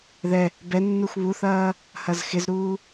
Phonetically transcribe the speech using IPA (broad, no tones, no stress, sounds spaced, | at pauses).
ð ɛ | b ɛ nː u x β u θ ɐː | h ɐ z x ɪ z ɾ uː